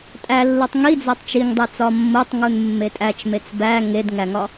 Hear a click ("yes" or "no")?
no